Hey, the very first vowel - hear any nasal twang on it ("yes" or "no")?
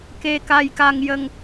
no